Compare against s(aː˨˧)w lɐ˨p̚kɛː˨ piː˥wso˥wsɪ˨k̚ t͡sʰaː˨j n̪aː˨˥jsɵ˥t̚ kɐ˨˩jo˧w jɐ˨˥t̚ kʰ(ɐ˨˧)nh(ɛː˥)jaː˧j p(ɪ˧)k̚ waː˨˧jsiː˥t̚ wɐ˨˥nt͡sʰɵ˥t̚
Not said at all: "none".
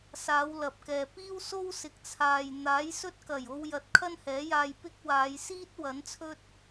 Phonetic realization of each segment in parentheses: aː˨˧, ɐ˥, ɛː˨˥, ɪ˥

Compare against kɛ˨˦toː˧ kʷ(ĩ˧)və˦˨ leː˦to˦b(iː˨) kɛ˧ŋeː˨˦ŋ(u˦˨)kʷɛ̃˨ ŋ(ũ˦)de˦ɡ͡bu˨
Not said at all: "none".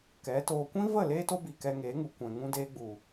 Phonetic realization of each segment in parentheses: ĩ˦, i˨, u˨, ũ˦

